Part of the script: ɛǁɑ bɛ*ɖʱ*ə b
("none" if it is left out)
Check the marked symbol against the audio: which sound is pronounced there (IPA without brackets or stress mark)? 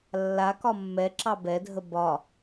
dʱ